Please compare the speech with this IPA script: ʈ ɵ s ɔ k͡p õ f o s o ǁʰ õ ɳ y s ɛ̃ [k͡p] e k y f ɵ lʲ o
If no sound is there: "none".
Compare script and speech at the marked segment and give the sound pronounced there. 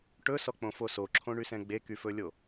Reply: ɡ͡b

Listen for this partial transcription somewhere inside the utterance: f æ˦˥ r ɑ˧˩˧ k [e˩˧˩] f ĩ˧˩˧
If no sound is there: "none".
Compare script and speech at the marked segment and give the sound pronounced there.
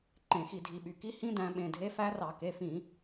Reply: e˩˧˩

